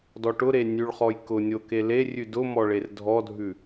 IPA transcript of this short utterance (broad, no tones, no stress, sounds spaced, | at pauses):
d ɔ ʈ ʊ ɾ e nʲ ʉ ɭ χ ɔ j k ʊ nʲ o k e l e rʲ ʉ d ʊ m ɔ ɭ e r dʱ ɔ dʱ ʉ